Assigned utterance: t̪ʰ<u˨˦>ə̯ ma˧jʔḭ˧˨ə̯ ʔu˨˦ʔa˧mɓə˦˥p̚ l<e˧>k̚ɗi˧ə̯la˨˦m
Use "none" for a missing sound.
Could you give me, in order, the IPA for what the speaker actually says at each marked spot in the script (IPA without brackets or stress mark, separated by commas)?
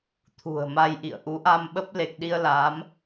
ṳ˨˩, e˨˩